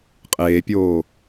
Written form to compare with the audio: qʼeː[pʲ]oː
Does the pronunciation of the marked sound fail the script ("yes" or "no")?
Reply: no